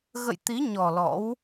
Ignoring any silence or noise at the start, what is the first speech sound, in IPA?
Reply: ɣ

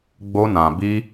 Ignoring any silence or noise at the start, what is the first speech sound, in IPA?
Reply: ɡ͡b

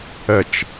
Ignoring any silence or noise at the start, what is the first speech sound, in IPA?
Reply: ə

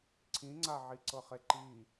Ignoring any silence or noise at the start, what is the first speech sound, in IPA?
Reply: ǀʰ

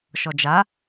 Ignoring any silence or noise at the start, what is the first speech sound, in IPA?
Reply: ʃ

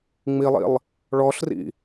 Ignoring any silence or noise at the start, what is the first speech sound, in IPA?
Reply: ŋ͡m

